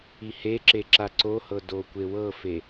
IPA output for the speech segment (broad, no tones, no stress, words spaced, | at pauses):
iheǁe ǁaǀohɤ dokʷewɤfe